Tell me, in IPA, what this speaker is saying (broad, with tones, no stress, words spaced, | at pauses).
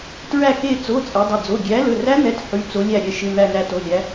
tɹæ˦˨ke˦˨ t͡so˩˧˩ t͡sʼɛ˨˦dˤɪ˩˧˩ d͡zo˩˧˩ ɡʲæ˨˦lɵ˩˧˩ræ˦˥n̪ɛ˩˧˩t ħy˩˧˩ t͡so˨˦lʲæ˦˨ ɾʲɛ˩˧˩ʃɪ˩˧˩ n̪æ˦˨næ˦˨to˩˧˩lʲæ˨˦